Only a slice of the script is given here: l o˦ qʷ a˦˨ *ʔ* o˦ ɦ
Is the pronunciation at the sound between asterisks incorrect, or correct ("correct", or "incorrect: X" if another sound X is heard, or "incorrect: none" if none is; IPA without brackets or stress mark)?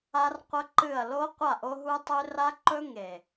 correct